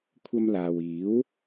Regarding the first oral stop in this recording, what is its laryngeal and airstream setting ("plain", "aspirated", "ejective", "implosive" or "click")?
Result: aspirated